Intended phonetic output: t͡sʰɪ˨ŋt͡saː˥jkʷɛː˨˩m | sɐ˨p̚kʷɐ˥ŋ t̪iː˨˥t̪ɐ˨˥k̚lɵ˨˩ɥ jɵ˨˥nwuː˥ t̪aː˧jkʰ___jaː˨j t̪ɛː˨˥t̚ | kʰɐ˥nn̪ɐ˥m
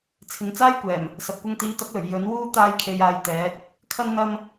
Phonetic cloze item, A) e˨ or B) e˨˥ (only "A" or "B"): A